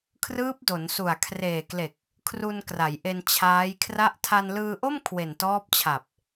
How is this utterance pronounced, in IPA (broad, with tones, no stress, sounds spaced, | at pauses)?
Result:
kʰ r ɯː˦˥ p̚ d o˩˦ n s u˨˩ a̯ kʰ r eː˨˩ k l e˨˩ k̚ | kʰ r u˧ n k r a˩˦ j ʔ e˧ n t͡ɕʰ aː˦˥ j kʰ r a˥˩ ʔ tʰ a˧ n l ɯː˧ ʔ o˥˩ m kʰ w e˨˩ n t ɔː˦˥ p̚ t͡ɕʰ a˨˩ p̚